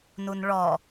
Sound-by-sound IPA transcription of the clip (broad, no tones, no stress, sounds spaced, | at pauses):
n u n ɭ ɔ